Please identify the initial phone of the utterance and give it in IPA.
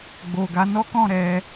ɡ͡b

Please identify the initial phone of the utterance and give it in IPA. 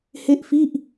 h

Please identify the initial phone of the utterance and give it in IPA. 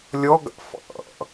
lʲ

